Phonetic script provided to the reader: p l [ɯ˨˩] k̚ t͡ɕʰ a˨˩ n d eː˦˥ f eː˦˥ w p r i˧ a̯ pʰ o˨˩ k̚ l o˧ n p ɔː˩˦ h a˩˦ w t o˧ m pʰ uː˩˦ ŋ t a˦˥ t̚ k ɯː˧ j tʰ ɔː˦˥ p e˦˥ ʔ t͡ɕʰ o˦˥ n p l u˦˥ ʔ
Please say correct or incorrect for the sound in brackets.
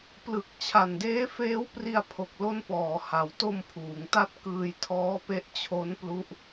correct